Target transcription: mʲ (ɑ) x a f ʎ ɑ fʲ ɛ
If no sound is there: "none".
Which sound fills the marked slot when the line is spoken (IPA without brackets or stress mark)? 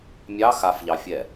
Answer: ɑ